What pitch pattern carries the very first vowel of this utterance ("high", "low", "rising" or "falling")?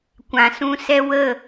low